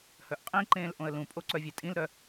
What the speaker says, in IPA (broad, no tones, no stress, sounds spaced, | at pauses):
h œ ʔ qʼ ĩ ǃ ẽː l ʔ õ ə̯ l ũ pʼ o ǀ œ vʲ e tʼ ĩ l ɾ œ